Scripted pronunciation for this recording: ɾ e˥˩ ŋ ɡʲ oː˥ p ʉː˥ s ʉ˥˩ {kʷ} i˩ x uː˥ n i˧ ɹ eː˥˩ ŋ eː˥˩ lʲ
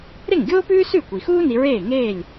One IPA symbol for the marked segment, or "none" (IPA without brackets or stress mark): kʷ